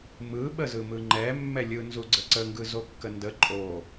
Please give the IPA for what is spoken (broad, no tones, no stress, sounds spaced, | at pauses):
m ɯ ɓ ə z ɯ m ɯ ŋ͡ǃ ɛ mː ɛ lʲ ɯ n z u ɡ͡ǀ ə ǀ ə ŋ ɡ ɯ z o kː ə n d ə ǃʼ o